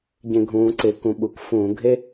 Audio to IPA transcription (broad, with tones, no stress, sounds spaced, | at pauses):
ɟ ẽ˧˩˧ ɡʱ ũː˩˧ ǀ ɪː˩˧ k ũ˩˧ ɓ u˩ k f ũː˧˩˧ ɡʱ e˥